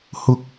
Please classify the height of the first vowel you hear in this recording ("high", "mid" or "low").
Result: high